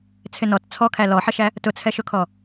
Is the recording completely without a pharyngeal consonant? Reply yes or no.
no